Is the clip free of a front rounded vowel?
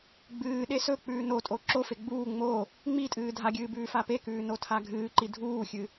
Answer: yes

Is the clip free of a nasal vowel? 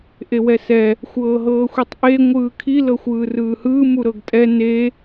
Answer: yes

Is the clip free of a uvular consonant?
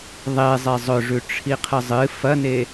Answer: no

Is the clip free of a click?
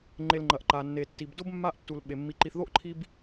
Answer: no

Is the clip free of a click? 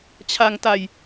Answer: yes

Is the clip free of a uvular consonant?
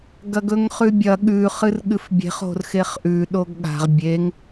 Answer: no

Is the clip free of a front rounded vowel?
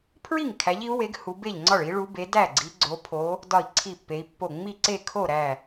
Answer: yes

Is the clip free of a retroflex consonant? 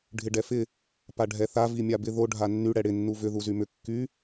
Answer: no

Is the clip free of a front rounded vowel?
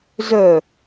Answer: no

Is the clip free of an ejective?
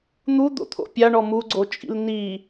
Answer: no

